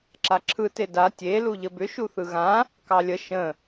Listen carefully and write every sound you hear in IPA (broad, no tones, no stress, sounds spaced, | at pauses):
ǁ a ǁʰ ɯ t e d a tʲ e l u ʎ ə b ʏ ʃ u θ ɯ ɣ ã | k ɑ lʲ ə ʃ ə̃